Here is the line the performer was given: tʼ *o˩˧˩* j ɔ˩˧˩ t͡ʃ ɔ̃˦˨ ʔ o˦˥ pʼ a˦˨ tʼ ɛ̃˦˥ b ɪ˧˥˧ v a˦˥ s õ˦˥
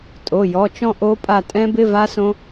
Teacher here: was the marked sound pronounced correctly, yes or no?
yes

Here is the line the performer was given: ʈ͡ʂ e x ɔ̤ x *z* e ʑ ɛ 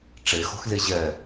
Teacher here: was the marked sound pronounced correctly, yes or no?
yes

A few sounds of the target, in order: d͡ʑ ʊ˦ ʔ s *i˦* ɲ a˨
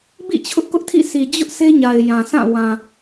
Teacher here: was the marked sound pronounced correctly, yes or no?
no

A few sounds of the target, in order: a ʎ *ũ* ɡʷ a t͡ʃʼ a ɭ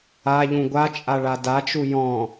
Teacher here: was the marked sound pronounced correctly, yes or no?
yes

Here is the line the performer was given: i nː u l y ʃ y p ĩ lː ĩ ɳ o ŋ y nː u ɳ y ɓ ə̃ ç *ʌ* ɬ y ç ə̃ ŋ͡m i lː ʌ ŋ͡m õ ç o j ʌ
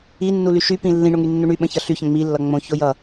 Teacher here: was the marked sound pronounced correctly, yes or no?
yes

